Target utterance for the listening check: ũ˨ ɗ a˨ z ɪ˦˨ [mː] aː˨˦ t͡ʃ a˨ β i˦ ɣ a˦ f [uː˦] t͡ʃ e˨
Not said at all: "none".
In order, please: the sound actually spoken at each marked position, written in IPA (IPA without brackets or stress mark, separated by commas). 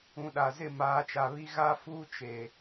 m, uː˦